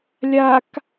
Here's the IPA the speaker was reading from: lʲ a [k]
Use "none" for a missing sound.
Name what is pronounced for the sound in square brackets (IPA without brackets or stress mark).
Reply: k